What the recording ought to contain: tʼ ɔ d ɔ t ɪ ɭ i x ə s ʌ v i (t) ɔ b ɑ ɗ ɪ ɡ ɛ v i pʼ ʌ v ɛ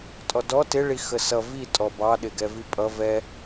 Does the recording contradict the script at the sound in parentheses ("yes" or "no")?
yes